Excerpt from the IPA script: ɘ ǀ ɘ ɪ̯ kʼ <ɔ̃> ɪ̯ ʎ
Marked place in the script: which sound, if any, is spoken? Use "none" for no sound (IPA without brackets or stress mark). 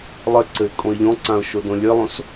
õ